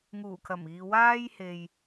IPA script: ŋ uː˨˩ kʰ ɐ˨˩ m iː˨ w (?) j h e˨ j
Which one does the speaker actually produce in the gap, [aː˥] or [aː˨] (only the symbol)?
aː˥